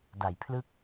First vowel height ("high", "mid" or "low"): low